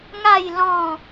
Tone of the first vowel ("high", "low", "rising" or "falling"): falling